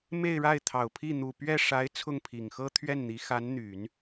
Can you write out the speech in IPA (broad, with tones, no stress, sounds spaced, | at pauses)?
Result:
m e˥˧ ɪ̯ ɻ a˥˩ ɪ̯ t̪ʰ ɑ˨˩ ʊ̯ pʰ i˥˩ n̪ u˨˩ p ɥ ɛ˥˩ ʂ a˧˥ ɪ̯ t͡sʰ ʊ˥˩ ŋ pʰ i˨˩ ŋ x ɤ˥ t̪ʰ ɥ ɛ˥˩ n n̪ i˧˥ x a˧˥ n n̪ y˨˩˦ n